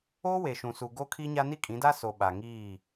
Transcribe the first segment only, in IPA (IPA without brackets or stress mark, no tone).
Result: oː